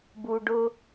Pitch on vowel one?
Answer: low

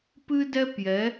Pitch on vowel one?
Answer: high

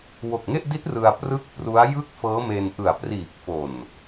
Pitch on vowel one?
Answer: low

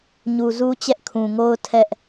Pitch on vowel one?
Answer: low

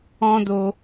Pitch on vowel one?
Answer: high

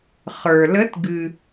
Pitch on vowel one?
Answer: low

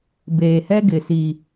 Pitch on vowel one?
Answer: low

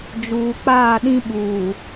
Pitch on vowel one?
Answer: low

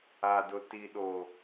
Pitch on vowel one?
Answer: low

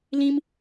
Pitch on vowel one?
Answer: high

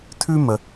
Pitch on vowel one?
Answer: high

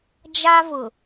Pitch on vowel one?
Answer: high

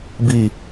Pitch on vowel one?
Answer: low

